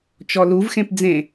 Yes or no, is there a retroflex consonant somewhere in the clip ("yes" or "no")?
no